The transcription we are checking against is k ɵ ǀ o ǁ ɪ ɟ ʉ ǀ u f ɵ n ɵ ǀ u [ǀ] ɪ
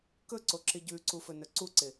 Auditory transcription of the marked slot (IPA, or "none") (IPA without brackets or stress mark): ǀ